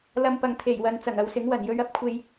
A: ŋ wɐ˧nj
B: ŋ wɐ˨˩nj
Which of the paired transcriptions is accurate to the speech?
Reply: B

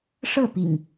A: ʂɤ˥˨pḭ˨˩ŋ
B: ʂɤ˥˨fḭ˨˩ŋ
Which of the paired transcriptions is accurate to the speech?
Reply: A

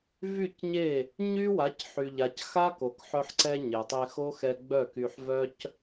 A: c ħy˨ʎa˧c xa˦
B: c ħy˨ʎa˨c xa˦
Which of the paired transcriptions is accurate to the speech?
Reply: B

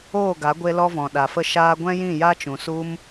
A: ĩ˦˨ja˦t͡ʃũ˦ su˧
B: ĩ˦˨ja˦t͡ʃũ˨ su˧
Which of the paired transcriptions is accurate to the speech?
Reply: B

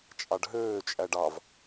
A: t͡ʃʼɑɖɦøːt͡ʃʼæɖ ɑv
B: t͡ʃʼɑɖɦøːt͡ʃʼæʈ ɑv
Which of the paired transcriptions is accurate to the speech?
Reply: A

